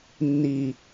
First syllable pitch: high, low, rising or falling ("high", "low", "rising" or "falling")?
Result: low